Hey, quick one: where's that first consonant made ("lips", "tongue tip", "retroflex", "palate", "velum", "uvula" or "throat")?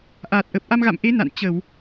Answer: throat